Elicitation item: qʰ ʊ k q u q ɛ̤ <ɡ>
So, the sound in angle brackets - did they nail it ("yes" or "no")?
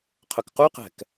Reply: no